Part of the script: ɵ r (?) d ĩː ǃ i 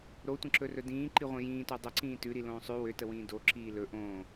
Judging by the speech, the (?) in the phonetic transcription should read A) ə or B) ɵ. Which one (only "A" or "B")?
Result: B